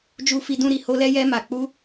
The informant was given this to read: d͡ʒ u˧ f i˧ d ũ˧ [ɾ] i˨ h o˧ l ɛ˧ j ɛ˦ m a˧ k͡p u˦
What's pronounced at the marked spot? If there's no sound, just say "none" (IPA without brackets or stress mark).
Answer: ɾ